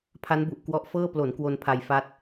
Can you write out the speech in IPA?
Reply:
pʰ a˦˥ n b u˨˩ ʔ k w ɔ˦˥ ʔ f ɤː˥˩ p l o˩˦ n k w o˧ n pʰ a˧ j f a˦˥ t̚

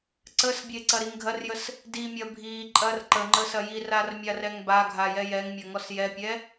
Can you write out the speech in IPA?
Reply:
ǀ ə s bʲ e ǀ ɐ ɾ i ŋ ɡʱ ɐ r j ə s | d i mʲ ɐ bʱ i ǃʼ ɐ r ǃ ə ŋ͡ǃ ə s ɐ j i r a r mʲ a r ɛ ŋ b a ɡʱ a j ɛ j ɛ ŋ mʲ ɐ ŋ ɔ s j ɛ pʲ ɛ

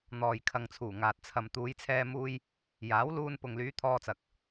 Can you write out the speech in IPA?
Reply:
n̪ ɔː˨ j kʰ ɐ˨ ŋ t͡sʰ uː˨˩ ŋ aː˨ t̚ t͡sʰ ɐ˨ m t̪ uː˨˧ j t͡sʰ ɛː˧ m uː˧ j | j aː˨˥ w l uː˧ n p ʊ˨ ŋ l yː˨˧ t̪ʰ ɔː˧ t͡s ɐ˨ k̚

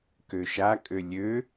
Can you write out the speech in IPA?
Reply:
k ø ʃ a kʼ ø lʲ ø

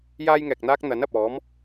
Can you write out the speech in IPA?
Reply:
j aː˥ j ŋ ɛː˨ k̚ n̪ aː˥ k̚ n̪ ɐ˨˥ n ɐ˨ p̚ ɔː˨˥ m

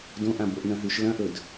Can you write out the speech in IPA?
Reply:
d õ ʔ ã b o ʔ n ɐ̃ ɦ ʉ ʃ l ɐ̃ ʔ ɵ d

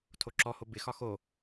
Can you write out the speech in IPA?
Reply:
tʰ o ǁ ɔ h o b ɪ x ɒ x o

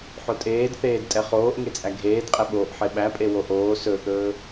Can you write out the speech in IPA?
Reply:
ħ o tʼ eː d θ eː d tʼ ɛ χ oː ʔ ŋ e t͡sʼ æ ɡʱ eː d qʼ ɛ ɓ oː ʔ ħ e ɓ æ pʼ e w o ʔ oː s ɵ θ ɵː

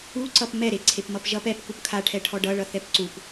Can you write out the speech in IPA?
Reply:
u ǀ ʌ p m ɛ ɾ e ǀʰ e p m ʌ p ʒ ʌ p ɛ p k u p kʰ a ʈʰ ɛ ʈʰ ɔ ɖ ʌ ɭ ʌ θ ɛ p ǀ u p

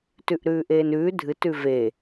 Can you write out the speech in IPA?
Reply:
t ʉ ʔ ɾ ʉː ʔ eː n ʉː dʱ ɨ t ʉ v e

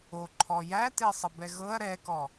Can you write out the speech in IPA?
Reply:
o ǃʰ ɔ j æ t e sˤ ə b ɛ ɣ ɤ ɐ̯ ɾ ɛ k ɔ

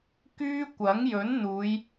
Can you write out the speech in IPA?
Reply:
k yː˥ kʷ ɐ˨˥ ŋ j ɵ˨˥ n n̪ uː˨˧ j

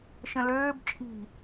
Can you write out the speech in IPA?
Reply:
ʃ ə̃ l øː b t͡ʃʼ i̤

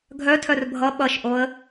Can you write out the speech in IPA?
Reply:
ɡʱ œ tʰ œ r bʱ ʌ ɓ ʌ ʃ ʔ o ə̯

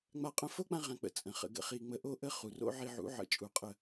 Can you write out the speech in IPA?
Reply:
ŋ͡m a˧ qʼ ə̃˦˨ f o˦ k͡p ã˧ ʁ ã˨ k͡p ə̰˨ t͡sʼ ə̃˨ χ ə̰˧ ɡ ə̰˦ χ i˦ ŋ͡m ə˦ ʔ o˦ ʔ ə˦ χ u˨ r o̰˦ ʕ i˧ ʕ ṵ˨˦ ʕ ə̰˧ t͡ʃʼ u˧ qʼ ə˦˨

